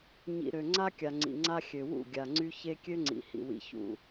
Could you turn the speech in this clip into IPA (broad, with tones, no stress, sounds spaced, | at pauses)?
ɲ ḭ˨ ɾ ø˨ ŋ͡ǀ a˦ kʲ a˨ ŋ͡ǀ ḭ˨ ŋ͡ǀ a˦ xʲ ø˨ w ṵ˦˨ ɡʲ a˨ ŋ͡ǀ y˦ ç e˦ kʲ ø˦ ŋ͡ǀ ḭ˨ h ḭ˨ w ḭ˨ ç ṵ˨